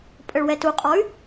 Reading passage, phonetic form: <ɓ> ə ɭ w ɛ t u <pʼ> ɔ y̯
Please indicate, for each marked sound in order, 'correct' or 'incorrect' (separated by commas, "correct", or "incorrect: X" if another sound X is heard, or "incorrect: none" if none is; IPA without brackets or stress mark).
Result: incorrect: pʼ, incorrect: qʼ